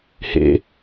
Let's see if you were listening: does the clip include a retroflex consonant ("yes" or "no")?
no